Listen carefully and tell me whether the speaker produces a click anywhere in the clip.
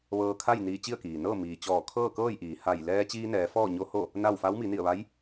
no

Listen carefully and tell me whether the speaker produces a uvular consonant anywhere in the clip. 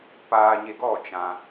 no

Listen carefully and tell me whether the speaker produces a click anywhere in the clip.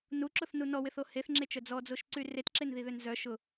yes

